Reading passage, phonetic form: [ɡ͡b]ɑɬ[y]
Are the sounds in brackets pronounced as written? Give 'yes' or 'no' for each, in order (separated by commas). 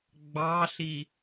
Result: yes, no